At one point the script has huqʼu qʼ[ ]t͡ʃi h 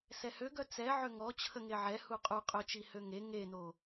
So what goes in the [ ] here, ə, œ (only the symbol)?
œ